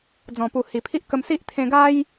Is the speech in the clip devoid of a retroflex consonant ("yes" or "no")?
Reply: yes